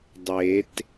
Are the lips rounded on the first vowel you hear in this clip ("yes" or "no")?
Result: no